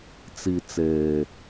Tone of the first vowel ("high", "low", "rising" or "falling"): low